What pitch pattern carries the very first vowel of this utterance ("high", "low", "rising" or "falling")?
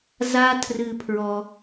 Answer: high